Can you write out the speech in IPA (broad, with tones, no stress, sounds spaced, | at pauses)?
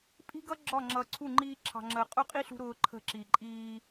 pʼ i̤˦ ɡ ʌ˦ ɡ͡ǁ ɒ˦˨ ŋ͡ǁ ʌː˨ ǀʰ u˦˨ ŋ͡ǃ iː˦ ǁʰ ɑ̤˨ ŋ͡ǁ əː˨ qʼ ʊ˦ qʼ i˦ ɬ ṳ˦ ɾ ʊː˦ ǃʰ ə̤˦˨ ǁ i˨ ǃʼ iː˦